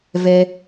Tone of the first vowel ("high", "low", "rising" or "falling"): high